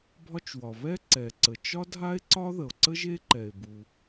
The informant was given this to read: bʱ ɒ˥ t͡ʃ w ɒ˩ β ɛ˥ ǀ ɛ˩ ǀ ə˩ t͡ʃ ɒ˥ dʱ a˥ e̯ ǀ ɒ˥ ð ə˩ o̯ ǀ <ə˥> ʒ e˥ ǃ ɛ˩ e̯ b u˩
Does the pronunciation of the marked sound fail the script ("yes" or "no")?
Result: no